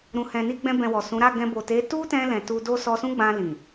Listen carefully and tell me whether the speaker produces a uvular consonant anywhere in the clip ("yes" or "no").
no